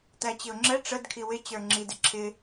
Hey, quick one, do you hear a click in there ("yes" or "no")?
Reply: yes